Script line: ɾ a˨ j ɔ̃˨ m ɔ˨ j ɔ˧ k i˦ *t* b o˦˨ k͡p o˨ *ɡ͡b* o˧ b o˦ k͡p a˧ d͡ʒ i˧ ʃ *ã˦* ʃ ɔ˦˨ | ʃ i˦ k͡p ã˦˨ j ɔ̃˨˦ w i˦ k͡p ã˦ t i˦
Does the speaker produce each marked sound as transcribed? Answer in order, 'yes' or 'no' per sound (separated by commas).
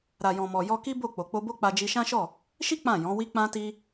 no, no, yes